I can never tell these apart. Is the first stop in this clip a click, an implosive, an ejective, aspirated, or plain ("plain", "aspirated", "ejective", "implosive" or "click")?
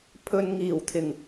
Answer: aspirated